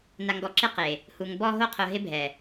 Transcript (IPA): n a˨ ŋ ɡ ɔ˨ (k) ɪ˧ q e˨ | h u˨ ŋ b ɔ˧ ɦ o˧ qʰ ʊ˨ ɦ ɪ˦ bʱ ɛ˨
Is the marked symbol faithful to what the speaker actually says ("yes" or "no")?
no